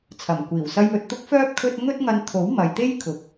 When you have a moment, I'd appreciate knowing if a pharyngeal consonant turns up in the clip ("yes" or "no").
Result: no